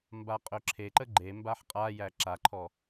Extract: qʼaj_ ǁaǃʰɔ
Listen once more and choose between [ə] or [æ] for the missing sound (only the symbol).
æ